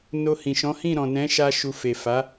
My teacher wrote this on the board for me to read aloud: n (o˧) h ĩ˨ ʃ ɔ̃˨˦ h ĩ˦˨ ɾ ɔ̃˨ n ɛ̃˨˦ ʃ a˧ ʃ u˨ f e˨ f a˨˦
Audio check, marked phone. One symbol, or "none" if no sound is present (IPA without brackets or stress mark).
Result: o˧